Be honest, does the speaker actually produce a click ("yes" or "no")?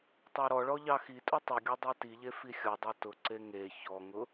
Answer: yes